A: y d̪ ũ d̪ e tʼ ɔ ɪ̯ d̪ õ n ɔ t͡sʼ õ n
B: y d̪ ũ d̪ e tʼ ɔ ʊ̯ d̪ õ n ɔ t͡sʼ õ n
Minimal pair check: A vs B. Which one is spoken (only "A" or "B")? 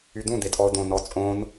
B